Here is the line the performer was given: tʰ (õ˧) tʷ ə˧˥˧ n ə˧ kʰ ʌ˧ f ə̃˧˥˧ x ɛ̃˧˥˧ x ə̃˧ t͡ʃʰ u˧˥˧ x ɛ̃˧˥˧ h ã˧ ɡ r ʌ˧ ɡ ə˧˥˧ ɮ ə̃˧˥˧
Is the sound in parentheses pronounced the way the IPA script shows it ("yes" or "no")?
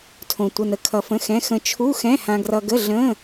yes